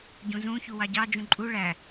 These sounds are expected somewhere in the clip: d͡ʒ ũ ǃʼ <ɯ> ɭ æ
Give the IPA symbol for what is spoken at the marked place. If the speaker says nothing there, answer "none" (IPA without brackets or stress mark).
u